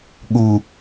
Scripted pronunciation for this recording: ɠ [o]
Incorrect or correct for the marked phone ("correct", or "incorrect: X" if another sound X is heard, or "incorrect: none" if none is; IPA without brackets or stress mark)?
incorrect: u